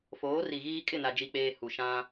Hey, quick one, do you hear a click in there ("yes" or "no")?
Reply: no